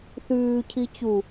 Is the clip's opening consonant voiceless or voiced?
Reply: voiceless